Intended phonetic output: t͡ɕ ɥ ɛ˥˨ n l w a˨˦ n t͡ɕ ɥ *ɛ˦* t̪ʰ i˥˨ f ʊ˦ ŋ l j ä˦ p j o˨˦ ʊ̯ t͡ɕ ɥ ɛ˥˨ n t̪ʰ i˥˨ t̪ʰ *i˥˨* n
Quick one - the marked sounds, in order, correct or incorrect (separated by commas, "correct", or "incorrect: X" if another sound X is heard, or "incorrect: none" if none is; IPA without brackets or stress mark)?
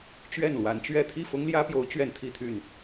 incorrect: ɛ˥˨, incorrect: y˥˨